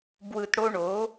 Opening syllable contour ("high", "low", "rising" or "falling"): low